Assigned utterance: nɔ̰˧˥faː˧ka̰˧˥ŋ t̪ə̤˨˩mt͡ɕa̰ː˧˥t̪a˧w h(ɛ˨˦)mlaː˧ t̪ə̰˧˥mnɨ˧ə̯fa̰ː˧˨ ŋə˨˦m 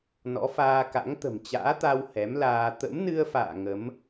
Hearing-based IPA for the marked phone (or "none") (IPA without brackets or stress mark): ɛ˨˦